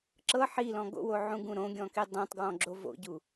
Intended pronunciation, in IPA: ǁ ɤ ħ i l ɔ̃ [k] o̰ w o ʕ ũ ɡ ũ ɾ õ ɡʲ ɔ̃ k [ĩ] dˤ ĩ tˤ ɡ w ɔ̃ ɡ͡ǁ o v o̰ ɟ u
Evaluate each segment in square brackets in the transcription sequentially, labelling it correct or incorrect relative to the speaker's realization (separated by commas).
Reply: incorrect, incorrect